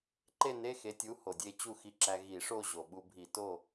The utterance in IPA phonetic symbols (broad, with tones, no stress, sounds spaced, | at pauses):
ǃ e˥˨ n e˧˥˧ x e˩˥ tʲ u˩˥ h o˩ dʲ e˥˨ t͡ɕ u˥˨ x i˧ ǁ æ˧ ɣ i˧˩˧ ʂ o˥˨ ʑ o˩ ɓ u˧ bʱ i˧˩˧ t o˥˨